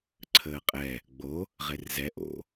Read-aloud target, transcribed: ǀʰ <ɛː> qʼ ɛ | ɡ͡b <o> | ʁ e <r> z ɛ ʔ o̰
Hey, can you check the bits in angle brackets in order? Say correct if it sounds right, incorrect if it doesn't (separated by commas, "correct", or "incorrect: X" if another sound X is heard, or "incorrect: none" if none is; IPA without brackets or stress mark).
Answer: incorrect: əː, correct, correct